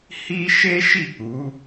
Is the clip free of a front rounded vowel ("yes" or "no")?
yes